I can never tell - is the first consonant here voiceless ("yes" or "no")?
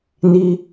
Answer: no